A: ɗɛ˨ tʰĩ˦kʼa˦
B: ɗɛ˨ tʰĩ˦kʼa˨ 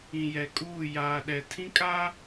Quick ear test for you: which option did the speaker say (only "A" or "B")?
A